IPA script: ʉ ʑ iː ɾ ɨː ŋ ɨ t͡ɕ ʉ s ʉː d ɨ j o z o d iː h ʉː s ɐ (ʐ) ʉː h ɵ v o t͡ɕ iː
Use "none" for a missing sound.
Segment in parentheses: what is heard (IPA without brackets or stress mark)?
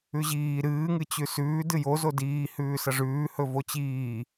ʐ